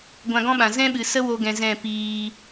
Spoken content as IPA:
ɡʷã˧ɡɔ̃˦ɓã˨ zɛ̃˦ɓɨ˨sə˦ wo˧ɡɛ̃˨ zɛ̃˦˨piː˧

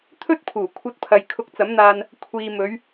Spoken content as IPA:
t̪ʰɵ˥t̚pʰuː˨˩ kʷʰɐ˧t̚pʰɐ˨j kʰʊ˧k̚t͡sɐ˨˥mn̪aː˧n | kʷʰiː˨mɵ˨˧ɥ

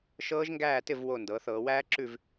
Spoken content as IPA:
ʃɤː˦˥ʒŋɡæː˥˨tɪ˥˨v wo˥˨ ndɤː˩˧θɤː˩˧wæː˦˥ ǁʉ˥˨v

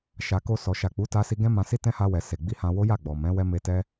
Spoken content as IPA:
ʃa˨ko˧ sɔ˨ ʃa˨k͡pu˨˦ta˧ si˧ɡɛ̃˦mã˧si˦ tɛ̃˦ha˧wɛ˨ se˨ɡ͡bi˧hã˧ wo˦ja˦˨ ɡ͡bɔ˨mɛ̃˨˦wɛ˦me˧ tɛ˦

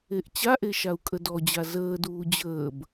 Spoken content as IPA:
eʔt͡ɕaʔe ʃau̯kʼədɔd͡ʑa zəːduː d͡ʑəːb

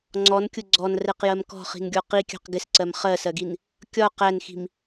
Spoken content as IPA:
ŋ͡ǀɔnkʲʊ ɡ͡ǀɔnrɛqjɜm kɔ̤χi̤nɡʲɔ qikʲɑ̤q ɡɪsǀɜm χɜsɜɡin | kʲɒ qænxi̤m

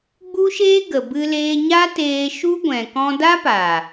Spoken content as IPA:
ɡ͡bu˦ʃeː˦ ɡə˨ bɨ˧leː˧ɲa˦ teː˧ʃu˦ ɡʷɛ̃˨kɔ̃˧da˦pa˨

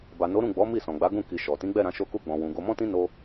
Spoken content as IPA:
ba˨no˨˦ ɾũ˦˨ɡ͡bɔ˨˦ mi˦˨sɔ̃˨ɡ͡ba˨˦ɡũ˦˨ ki˨ʃɔ˨ tĩ˨˦ɡ͡bɛ˦˨ɾã˧ ʃo˧ku˧ɡ͡bɔ̃˨wũ˨ ɡo˧mɔ̃˦tĩ˦ no˦

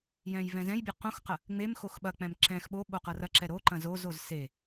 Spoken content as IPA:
jɛ̃jvɛ̃zɛ̃jbʲʌ qõxqɐ | ŋ͡mem xoxɓɐk͡pɛ̃m ǁɛ̃x ɓo ɓoqʌrɐǁɛ ɾo ǃɐ̃zozoz se

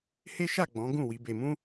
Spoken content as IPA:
he˦ʃa˦˨ ɡ͡bɔ̃˨˦ɡũ˦˨ wi˨˦be˧mũ˦

